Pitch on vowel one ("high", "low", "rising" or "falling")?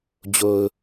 low